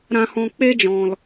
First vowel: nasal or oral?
nasal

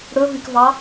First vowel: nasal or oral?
oral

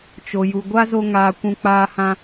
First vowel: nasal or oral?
oral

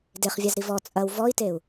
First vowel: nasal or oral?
oral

